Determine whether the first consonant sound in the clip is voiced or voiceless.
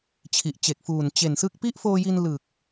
voiceless